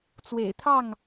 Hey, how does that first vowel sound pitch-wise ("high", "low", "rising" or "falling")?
low